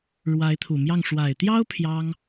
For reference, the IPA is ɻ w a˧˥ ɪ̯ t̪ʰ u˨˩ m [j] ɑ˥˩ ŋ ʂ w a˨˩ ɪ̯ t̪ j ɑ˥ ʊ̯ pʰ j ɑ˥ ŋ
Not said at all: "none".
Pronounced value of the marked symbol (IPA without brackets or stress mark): j